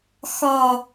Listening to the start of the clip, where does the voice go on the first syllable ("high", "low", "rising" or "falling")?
low